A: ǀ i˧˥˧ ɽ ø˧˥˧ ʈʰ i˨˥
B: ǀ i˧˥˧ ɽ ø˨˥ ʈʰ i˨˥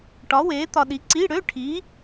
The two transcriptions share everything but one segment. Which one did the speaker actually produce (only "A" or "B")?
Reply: A